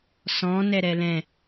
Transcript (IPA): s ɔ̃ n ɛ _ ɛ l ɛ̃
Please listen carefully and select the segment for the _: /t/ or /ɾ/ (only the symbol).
ɾ